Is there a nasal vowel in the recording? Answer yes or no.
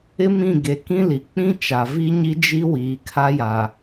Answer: yes